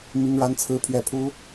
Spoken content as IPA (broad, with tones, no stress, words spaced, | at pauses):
mi˥ŋɻa˥nt͡sʰɹ̩˥pʰɥɛ˥˩ pʰu˥